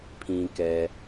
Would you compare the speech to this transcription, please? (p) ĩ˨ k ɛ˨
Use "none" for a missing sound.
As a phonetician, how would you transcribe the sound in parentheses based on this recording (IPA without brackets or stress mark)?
pʰ